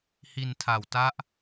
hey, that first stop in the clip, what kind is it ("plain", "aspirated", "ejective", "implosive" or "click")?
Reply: aspirated